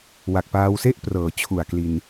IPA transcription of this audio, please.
wa˨˩k̚paː˧wse˥˩ʔ prɤː˩˦ t͡ɕʰu˨˩a̯kli˧n

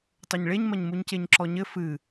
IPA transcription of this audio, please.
tˤoɲɭeɲmɐɲmuɲ ceɲǁɔɲɘ fɨ

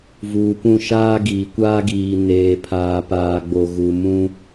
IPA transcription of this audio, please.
vuː˨pũ˦˨ ʃaː˦ɡiː˨kʷaː˦ɡiː˨ neː˨pʰaː˨paː˨ɡ͡bo˨ ɣu˨ mũ˦

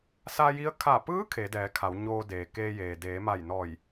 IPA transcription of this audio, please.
sa˧ji˧˥ə̯ kʰa˧˩ pɯː˧˥ kʰe˩˧dɛː˩˧kʰa˩˧w ɲoː˧deː˩ keː˧jeː˩ deː˩˧ma˧˩jnɔː˧˩j

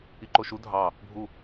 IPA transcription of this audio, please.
iǃoʃu dʱɑ | bʱu

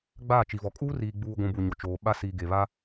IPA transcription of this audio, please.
ɡ͡baː˦˨t͡ʃi˨vɔ˨ kʼuː˦riː˨ɡ͡buː˨ɡʷũ˨ bu˨ɲo˨ t͡ʃoː˨ ɓa˦ siː˨ ɡe˨βa˦

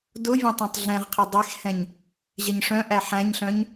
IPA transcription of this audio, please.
dʊvʲẽ tˤẽtˤɮɛ̃ʁqʰe dˤexhɛ̃ɲ | ʑɛɲʂœ̃ʔæ ħæ̃ɲɬœ̃ɲ

